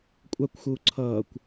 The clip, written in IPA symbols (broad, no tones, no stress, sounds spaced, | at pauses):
kʷʼ a kʷ x uː ǀʰ ʌː kʷ